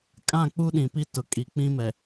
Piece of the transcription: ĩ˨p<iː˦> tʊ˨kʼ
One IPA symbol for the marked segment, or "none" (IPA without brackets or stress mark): i˦